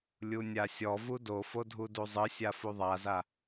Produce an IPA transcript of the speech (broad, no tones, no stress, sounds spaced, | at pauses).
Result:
lʲ u nʲ a sʲ ɔ v u d o f o dʱ u d u zˤ ɨ sʲ a f u ðˤ a z a